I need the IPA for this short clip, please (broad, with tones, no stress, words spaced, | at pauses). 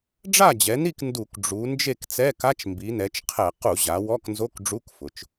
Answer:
ɖ͡ʐa˥˨d͡ʑɛ˩˧ni˥˨k ndu˧˩˧k ɖ͡ʐu˩˧ nd͡ʒe˥˨kt͡sɛ˧˥˧ka˧˥˧t͡ʃ mbi˩˧nɛ˩˧t͡ʃqʰɛ˧˩˧ qu˧˩˧ʑa˩˧ wɔ˧˥˧knzo˧˥˧k ɖ͡ʐu˧˥˧kfʊ˩˧t͡ʃ